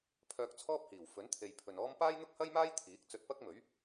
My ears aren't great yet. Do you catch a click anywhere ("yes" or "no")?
no